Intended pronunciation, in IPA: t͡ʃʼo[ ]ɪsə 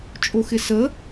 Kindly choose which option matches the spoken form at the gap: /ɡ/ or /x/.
x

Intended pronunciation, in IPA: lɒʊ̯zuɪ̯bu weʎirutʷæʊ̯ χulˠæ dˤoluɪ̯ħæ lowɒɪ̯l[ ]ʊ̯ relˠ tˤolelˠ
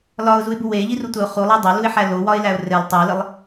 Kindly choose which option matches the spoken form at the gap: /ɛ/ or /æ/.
æ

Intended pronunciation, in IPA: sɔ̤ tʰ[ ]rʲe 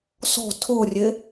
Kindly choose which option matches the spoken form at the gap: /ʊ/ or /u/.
ʊ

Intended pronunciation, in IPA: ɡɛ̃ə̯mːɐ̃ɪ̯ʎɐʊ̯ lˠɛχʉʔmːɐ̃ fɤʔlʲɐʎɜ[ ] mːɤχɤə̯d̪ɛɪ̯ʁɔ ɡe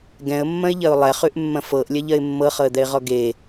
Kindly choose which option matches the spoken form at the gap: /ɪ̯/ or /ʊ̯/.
ɪ̯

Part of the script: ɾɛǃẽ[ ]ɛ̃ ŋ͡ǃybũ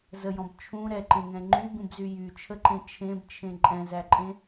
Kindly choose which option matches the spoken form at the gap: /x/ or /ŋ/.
ŋ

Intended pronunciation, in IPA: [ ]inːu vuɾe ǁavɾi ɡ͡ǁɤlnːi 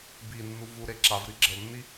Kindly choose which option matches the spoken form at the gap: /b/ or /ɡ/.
b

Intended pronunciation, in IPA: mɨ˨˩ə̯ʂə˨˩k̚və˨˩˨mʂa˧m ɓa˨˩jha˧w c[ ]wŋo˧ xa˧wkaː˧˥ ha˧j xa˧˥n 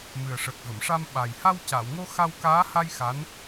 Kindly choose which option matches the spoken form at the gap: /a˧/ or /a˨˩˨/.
a˨˩˨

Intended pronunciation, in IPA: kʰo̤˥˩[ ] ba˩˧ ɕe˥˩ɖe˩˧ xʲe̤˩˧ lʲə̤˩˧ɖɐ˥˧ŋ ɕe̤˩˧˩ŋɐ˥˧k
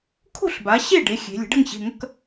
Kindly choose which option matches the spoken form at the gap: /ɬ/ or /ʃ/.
ɬ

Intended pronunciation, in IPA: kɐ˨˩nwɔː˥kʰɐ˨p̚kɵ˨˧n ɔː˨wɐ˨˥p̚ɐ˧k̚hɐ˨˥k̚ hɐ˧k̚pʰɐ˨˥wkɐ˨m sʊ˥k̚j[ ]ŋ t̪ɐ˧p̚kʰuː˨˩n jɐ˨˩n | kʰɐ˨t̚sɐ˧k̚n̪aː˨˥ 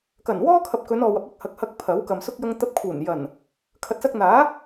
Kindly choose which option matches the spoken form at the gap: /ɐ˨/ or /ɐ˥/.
ɐ˥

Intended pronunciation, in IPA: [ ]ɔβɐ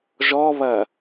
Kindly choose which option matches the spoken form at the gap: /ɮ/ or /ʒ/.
ʒ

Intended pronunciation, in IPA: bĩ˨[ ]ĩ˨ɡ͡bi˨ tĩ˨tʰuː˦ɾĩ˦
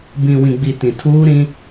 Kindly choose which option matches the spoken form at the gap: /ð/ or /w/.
w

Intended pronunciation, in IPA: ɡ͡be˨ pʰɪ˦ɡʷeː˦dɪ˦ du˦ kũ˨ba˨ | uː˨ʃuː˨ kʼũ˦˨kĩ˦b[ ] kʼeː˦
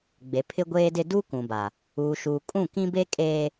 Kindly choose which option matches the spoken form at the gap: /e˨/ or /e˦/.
e˦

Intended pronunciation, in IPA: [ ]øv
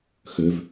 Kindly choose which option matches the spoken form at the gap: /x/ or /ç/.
x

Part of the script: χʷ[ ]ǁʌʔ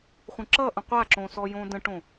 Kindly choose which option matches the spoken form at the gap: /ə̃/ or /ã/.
ə̃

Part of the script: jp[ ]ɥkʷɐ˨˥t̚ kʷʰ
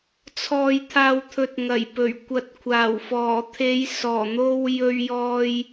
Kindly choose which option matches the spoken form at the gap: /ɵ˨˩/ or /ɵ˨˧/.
ɵ˨˩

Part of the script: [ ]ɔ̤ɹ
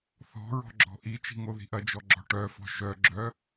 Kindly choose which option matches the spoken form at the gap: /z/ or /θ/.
θ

